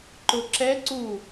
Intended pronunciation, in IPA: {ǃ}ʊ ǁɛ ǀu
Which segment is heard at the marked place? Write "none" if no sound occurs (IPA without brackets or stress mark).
ǃ